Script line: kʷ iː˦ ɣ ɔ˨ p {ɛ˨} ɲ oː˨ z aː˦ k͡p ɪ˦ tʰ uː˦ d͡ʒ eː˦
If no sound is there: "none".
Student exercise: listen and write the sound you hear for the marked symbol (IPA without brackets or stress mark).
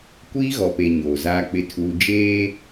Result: e˨